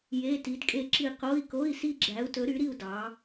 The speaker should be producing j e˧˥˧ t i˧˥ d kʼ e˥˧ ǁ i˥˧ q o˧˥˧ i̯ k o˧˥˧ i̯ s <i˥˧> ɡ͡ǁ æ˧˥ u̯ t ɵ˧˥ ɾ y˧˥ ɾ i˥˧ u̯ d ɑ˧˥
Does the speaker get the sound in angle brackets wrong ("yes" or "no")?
no